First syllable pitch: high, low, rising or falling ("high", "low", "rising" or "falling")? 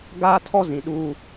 high